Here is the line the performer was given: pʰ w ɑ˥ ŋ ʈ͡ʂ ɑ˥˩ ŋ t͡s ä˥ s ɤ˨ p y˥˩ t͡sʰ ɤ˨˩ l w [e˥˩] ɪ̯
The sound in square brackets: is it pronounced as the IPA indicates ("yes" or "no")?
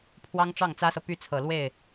yes